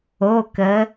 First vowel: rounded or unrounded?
rounded